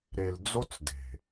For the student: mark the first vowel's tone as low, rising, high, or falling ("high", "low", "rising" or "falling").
low